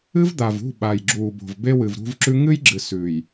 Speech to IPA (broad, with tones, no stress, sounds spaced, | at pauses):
ɨ˦ v d̪ a˨ v ṳ˦˨ ɓ a˨ j ɡ͡ǁ uː˨ b o̤˨ v b e˦ w ɨ˨ v ɾ ṳ˦ v ǁ ʉ˦ ŋ ɨ˦ j ɡ͡ǁ ɨ˨ s ʉː˨ j